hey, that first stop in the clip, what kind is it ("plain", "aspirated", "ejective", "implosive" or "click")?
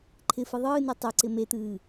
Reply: click